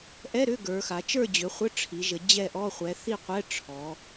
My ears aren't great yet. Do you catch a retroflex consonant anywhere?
yes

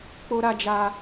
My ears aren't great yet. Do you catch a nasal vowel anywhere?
no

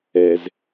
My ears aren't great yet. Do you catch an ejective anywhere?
no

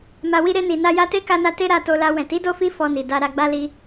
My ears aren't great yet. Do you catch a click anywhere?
no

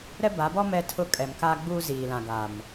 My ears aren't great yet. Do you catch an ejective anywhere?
yes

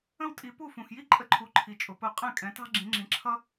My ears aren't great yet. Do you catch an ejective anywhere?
yes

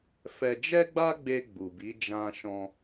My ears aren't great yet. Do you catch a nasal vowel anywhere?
yes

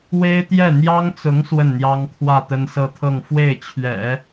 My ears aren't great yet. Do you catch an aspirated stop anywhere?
yes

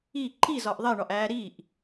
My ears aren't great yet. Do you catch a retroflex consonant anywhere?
yes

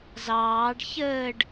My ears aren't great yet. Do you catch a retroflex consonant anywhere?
yes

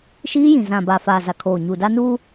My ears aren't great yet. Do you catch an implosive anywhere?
no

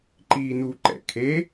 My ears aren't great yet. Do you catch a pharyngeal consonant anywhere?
no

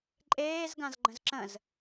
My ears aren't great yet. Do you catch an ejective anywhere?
yes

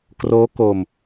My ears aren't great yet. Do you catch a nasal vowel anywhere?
no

